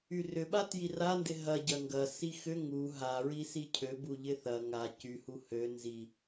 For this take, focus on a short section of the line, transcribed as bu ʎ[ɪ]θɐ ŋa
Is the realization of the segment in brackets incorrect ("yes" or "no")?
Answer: no